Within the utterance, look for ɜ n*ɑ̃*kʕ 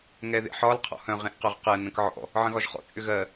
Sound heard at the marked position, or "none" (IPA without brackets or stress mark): ə̃